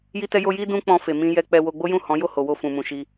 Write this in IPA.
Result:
j i˦ t ɛ˦ j o˦ j i˦ d ũ˦ k͡p ɔ̃˧ f e˨ m ĩ˧ j ɛ˧ k͡p ɛ˧ w o˧ ɡ͡b o˦ j ũ˦˨ h ɔ̃˨˦ j o˦˨ h o˨ w o˧ f ũ˨ m ũ˨ ʃ i˧

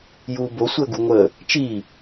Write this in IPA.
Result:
j uː b o sʷ əː ɡ u ŋʷ əː | t͡ʃ iː

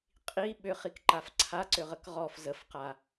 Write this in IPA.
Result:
qʼ i ɓ ʏ χ i k ǃ a f ǀʰ a ǀ ʏ ʁ ə k ʁ ɔ f z ə f q a

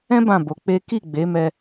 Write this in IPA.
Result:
ɛ̃˦ b ã˦˨ b o˨˦ k͡p e˦ k i˦˨ ɡ͡b e˨˦ m ɛ˧

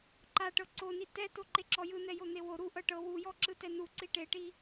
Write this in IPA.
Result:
ǃ a ʈ ɤ ǀ o n i t ɛ t o ǃ e ǁ ɔ j ɯ n̪ ɛ j o n̪ e w o ɾ u ʔ ɤ ʈ ɤ w u j ɔ ǁ ɯ t ɛ n u ǀ i ʈ e ʈ i

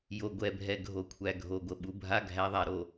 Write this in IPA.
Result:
j o˨ ɡʷ ɛ˨ bʱ ɛ˨ ɡʱ o˨ kʷʰ æ˨ ɡʱ o˨ ɡʷ ə˨ ɓ u˨ bʱ a˦ ɡʱ æ˨˦ ðˤ a˨ ɾ o˨

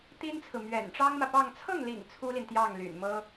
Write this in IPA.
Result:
t̪ i˥ n t͡sʰ ɹ̩˨ m ɥ ɛ̰˨˩ n ʈ͡ʂ ɑ˥ ŋ m ä˨ p ɑ˥˧ ŋ t͡sʰ ɤ˥˩ ŋ l ḭ˨˩ ŋ t͡sʰ u˥ l i˨ n t̪ j ɑ˥˩ ŋ l y̰˨˩ n m ɤ˥

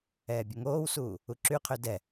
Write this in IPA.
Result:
ɛː bʲ o ŋ oː w s uː | u ǁ y qʰ ø d ɛ

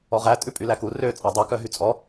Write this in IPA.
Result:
ɔ ʁ æ tʼ ʉ pʼ y l æ k u r ø t͡sʼ ɑ dˤ ɑ k œ ɦ y t͡sʼ ɔ

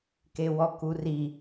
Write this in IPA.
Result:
k e w ɔ k u r i

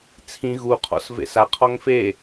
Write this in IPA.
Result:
t͡sʰ ĩ ɣ u qʰ ɔ̰ s v ḛ s a qʰ ɔ ŋ f e

